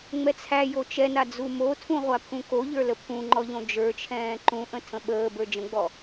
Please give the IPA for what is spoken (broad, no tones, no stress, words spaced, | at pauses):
ŋ͡mɛt͡sʰæjo t͡ʃɛna d͡zumotʰũ ʁʷapʰũkoʎə˞ ləpʰũŋ͡ǃɔ ʎõd͡ʒə˞t͡ʃʰɛ̃ː ǃũʔə̃ tʰə̃ɓəːbə˞ d͡ʒə̃ɡ͡bɔ